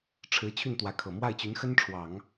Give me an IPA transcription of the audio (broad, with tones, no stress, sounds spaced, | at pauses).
ʈ͡ʂʰ ɻ̩˧˥ t͡ɕʰ y˥˩ n t̪ w ä˧˥ kʰ ɤ˨˩ m w a˥˩ ɪ̯ t͡ɕ y˧˥ n x ə˥ n ʈ͡ʂʰ w ɑ˨˩˦ ŋ